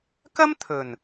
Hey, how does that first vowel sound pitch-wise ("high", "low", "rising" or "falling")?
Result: high